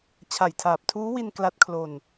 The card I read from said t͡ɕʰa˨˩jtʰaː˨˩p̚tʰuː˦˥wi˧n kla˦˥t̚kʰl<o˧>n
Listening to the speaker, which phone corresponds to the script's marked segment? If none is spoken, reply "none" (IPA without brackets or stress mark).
o˧